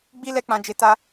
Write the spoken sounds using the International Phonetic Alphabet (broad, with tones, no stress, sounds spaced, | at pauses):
ɡ͡b i˦ l ɛ˦ k͡p ã˧ d͡ʒ e˧ t a˦